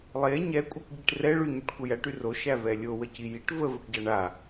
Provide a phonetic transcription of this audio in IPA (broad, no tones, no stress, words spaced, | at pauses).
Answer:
lˠe ɲɛkʷʼəkʷɟiʈ rɛ ɭyɲyʈ kʷəjæʈy roʃæ vɛlʲowə cijiʈ vəvoʈɟa ɳa